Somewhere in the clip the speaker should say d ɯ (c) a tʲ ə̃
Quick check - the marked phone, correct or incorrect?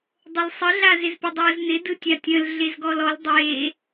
incorrect